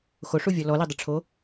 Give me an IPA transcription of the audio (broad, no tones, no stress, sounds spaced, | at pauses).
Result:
x o ʂ u vʲ ɔ l ɔ l i dˤ ʊ ʈ͡ʂʰ o